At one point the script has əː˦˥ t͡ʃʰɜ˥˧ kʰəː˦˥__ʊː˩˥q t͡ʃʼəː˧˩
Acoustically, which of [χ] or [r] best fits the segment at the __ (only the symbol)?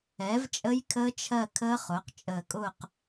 χ